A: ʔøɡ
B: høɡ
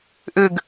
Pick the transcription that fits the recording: A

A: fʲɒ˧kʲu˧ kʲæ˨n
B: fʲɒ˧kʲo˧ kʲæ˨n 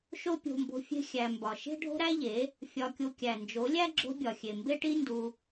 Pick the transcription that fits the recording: A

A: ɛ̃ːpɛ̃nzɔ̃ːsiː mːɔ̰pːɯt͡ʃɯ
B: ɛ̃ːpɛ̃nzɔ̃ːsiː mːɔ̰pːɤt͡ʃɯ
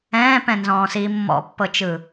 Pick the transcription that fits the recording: B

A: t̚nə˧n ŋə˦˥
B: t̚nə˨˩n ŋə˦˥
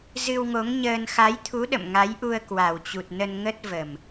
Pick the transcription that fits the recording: A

